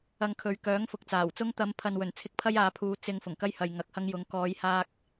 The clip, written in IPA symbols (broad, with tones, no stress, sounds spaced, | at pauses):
ɐ˧ ŋ kʰ ɵ˨˧ ɥ k œː˨˥ ŋ f ʊ˨ k̚ t͡s aː˨˩ w t͡s ʊ˧ ŋ t̪ ɐ˨˧ m pʰ ɐ˨ n w ɵ˨˩ n t͡sʰ ɪ˧ k̚ pʰ ɐ˥ j aː˨˧ pʰ uː˨˧ t͡s ɪ˧ ŋ f ʊ˨˩ ŋ k ɐ˥ j h ɐ˨ j ŋ ɐ˨˥ k̚ h ɐ˥ ŋ j ʊ˨˥ ŋ k ɔː˨˧ j h aː˧ k̚